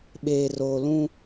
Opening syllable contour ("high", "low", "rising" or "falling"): low